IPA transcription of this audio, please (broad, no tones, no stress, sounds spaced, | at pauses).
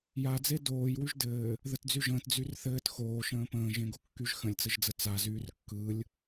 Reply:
j a d͡z e d oː j w y ʒ d ɘː | ð ə t d͡z y ʒ ə̃ː t d͡z y r θ ɘː t x oː ʃ ə̃ː p ə̃ː ʒ ẽ ɡ o kː y ʒ x ə̃ lʲ t͡s ə ʒ d͡z ə t͡s a z yː r kː ɯ lʲ